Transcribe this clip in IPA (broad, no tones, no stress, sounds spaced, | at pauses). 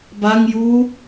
b a ŋ j uː